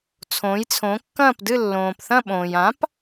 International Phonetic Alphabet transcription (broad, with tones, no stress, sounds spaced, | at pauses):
t͡sʰ õ˩˧ j t͡sʰ õ˩˧ kː ɐ̃ː˦˨ p d ɨ˦˨ lː õː˩ p θ ɐ̃˦˨ ɓ õː˩ j ã˩˥ p